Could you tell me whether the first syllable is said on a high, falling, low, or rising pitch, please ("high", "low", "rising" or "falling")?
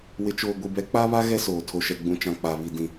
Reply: low